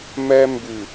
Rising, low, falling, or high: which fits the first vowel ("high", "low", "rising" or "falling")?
high